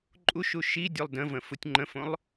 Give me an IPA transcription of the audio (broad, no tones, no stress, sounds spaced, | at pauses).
ǃʼ u ʃ u ʃ i dʲ o lˠ d ə̃ v ə̃ f u tʲ ŋ͡ǃ ə̃ f õ lˠ